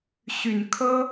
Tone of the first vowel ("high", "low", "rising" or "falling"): low